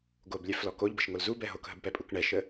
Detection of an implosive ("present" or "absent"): absent